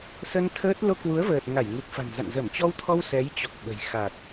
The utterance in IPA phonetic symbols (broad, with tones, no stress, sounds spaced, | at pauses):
s ə˧ n t̪ʰ əː˦˥ t̚ l o˧ k w u˨˦ ə̯ v əː˨˩ t̚ ŋ a˧˩ j ŋ u˨˩ k̚ f a̤˨˩ n z a̰˧˨ n z ə˧˩ m t͡ɕ ɔ˧ w t̪ʰ ɔ˧ w s ɛ˨˦ j t͡ɕ ɔ˨˩ k̚ ɓ ə̤˨˩ j x a˨˩ t̚